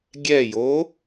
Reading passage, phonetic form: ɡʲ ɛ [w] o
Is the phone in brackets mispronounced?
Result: yes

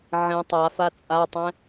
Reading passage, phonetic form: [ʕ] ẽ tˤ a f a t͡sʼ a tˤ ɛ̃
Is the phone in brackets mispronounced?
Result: no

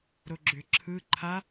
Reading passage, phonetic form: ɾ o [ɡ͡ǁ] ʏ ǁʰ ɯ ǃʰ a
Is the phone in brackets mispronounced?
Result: no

